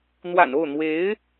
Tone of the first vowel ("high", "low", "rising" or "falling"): low